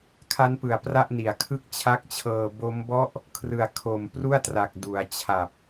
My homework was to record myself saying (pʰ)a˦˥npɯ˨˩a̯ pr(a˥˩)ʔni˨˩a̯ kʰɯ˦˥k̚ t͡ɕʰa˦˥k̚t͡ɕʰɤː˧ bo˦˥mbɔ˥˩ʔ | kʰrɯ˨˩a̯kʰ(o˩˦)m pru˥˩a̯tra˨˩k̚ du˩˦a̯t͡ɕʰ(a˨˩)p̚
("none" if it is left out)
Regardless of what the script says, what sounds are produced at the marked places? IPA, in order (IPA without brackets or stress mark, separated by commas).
kʰ, a˥˩, o˨˩, a˨˩